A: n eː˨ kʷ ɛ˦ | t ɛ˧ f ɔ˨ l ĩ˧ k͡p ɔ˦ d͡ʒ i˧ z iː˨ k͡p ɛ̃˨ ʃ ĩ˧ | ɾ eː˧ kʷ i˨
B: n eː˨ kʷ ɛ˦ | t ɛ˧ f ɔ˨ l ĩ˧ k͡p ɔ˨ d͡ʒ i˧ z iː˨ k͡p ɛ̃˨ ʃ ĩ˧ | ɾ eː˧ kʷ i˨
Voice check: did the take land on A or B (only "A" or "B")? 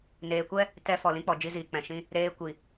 B